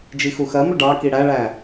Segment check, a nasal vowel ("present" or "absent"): absent